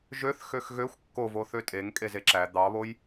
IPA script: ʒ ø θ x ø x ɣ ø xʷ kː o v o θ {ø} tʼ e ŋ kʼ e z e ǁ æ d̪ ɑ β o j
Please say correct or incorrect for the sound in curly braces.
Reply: correct